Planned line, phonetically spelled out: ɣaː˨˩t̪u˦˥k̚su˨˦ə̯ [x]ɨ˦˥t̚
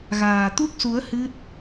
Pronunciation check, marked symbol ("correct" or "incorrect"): incorrect